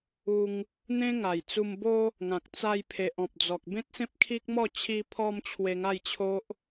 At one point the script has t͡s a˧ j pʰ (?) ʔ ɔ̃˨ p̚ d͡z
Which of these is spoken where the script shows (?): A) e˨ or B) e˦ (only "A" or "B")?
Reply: A